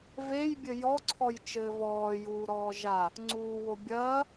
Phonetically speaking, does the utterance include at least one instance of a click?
yes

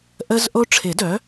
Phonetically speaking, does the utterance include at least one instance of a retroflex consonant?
yes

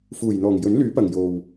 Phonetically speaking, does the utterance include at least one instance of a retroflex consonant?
no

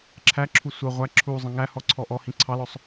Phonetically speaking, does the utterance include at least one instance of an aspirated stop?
yes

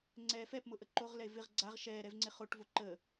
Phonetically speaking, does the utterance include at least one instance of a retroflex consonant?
yes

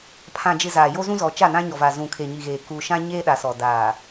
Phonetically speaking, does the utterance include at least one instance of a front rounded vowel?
no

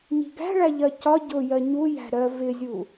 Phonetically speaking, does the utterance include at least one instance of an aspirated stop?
no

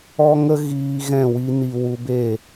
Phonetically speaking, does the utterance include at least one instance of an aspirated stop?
no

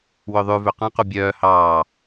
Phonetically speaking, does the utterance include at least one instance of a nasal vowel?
yes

